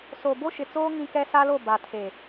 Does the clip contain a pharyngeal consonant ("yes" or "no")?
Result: no